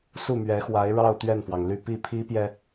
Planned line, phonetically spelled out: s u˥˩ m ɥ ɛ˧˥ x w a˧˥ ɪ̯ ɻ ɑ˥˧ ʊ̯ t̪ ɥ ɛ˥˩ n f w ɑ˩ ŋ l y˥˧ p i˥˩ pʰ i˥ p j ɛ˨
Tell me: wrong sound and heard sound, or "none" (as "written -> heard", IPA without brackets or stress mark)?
none